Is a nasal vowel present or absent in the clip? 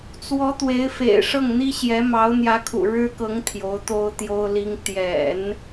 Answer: absent